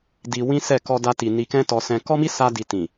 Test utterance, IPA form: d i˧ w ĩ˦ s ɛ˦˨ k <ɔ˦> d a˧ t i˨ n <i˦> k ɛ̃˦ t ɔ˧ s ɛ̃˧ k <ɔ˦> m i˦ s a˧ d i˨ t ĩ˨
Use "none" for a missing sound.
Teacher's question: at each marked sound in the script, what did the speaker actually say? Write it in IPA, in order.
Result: ɔ˧, i˧, ɔ˦

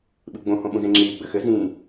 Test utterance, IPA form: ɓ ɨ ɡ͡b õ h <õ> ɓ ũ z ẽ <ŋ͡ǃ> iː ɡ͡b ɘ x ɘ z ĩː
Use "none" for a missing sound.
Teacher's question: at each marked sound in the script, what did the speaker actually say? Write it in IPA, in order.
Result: õ, ŋ͡ǁ

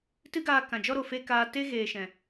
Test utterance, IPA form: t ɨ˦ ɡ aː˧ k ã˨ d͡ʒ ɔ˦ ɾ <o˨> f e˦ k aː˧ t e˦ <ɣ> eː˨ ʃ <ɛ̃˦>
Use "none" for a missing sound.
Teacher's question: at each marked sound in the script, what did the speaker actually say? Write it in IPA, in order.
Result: o˨, ɣ, ɛ̃˨

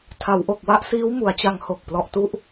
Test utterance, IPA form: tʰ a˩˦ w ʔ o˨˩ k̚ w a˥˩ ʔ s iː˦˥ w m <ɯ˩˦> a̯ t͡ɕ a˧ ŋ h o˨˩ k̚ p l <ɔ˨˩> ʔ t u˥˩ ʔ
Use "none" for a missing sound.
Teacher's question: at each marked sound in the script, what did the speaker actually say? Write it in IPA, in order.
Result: u˩˦, ɔ˨˩

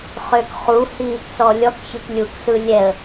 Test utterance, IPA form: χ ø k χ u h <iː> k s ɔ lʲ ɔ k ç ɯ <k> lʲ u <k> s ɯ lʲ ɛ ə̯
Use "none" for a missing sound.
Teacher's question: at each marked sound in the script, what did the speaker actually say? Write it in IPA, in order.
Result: iː, k, k

